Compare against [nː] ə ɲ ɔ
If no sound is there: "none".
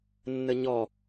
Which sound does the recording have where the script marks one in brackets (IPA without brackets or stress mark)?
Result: nː